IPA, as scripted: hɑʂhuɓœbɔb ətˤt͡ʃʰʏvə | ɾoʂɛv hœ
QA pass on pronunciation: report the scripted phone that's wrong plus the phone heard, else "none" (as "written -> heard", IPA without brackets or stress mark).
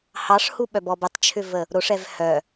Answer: none